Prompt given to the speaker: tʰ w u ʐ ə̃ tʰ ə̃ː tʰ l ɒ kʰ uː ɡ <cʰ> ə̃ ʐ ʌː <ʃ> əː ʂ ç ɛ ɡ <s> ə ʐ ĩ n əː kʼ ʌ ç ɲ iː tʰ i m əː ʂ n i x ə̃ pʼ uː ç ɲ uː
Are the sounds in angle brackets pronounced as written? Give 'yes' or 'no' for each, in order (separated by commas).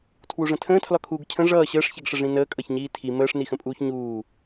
yes, no, no